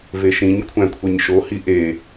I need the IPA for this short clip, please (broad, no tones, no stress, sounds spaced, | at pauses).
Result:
v e ʃ ĩ ɲ kʷʰ æ̃ kʷʰ e ɲ ʃ o h i ʔ e